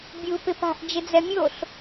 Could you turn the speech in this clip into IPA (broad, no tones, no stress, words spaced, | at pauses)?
bʲuːpɪpa̤ʔ d͡ʒɪd͡zɛmʲoɬ